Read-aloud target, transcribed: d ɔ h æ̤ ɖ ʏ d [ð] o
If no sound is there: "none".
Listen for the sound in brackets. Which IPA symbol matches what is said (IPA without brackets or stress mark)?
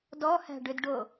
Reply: ɖ